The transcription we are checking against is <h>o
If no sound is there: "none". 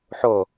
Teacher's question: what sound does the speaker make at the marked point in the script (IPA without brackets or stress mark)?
ħ